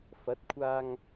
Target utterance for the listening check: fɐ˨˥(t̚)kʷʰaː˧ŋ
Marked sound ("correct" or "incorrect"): correct